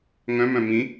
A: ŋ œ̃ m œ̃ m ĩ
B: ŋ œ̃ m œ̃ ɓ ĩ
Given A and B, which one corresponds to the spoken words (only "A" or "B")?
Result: A